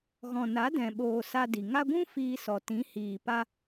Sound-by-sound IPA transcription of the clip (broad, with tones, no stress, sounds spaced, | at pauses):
ɣ ɔ̃˨ n a˨˦ d ɛ̃˨ ɓ oː˨ s a˧ d i˨ ŋ a˧ ɡʷ ũ˦ f iː˧ s ɔ˨ t ĩ˨˦ h iː˨ p a˧